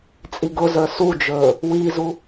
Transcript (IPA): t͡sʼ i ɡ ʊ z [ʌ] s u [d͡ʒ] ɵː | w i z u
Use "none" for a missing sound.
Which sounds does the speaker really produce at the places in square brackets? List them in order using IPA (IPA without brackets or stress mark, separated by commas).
ə˞, d͡ʒ